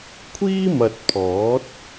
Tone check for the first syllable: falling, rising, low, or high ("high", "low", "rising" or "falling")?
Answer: high